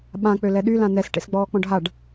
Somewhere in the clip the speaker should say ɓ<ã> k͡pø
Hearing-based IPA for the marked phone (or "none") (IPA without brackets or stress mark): ã